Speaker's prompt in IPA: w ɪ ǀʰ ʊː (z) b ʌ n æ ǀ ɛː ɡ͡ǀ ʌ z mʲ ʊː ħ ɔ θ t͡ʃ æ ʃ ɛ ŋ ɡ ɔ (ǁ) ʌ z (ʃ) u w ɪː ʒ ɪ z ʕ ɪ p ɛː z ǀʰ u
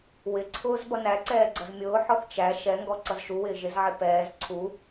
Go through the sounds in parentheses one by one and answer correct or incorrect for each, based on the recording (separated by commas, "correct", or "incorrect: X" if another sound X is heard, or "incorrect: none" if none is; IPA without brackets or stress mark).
correct, incorrect: ǀ, correct